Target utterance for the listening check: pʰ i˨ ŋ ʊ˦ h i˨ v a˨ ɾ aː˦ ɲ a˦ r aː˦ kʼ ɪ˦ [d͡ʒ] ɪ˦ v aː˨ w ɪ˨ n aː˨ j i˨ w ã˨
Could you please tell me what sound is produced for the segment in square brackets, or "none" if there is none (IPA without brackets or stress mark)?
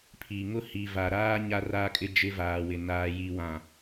d͡ʒ